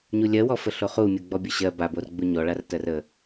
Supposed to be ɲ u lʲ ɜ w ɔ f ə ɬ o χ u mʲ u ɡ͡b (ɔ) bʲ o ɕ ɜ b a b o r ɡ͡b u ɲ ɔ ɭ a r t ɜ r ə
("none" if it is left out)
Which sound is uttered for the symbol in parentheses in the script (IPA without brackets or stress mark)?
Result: ɔ